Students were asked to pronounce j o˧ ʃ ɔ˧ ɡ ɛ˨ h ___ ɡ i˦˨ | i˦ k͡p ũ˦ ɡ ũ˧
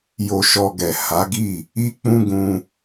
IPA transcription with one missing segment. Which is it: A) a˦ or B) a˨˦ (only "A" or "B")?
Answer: B